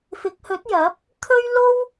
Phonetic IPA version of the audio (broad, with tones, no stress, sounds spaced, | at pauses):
f ɪ˨˥ k̚ h ɵ˨˥ t̚ j ɐ˨˥ p̚ | t̪ʰ ɵ˥ ɥ l o˥ w